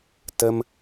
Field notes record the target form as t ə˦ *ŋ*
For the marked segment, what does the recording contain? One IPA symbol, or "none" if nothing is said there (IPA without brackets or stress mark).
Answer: m